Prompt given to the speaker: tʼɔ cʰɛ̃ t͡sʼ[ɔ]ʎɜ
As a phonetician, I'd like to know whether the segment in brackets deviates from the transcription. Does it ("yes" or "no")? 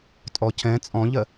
yes